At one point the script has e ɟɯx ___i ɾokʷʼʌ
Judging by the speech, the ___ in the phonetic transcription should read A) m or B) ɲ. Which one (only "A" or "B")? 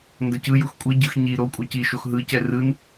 B